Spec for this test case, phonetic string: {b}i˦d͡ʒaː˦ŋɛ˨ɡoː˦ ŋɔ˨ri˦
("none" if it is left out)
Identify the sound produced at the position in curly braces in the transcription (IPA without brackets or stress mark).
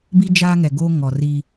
b